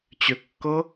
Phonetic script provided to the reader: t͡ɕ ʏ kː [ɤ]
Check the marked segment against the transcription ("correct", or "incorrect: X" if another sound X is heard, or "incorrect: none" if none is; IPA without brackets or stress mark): correct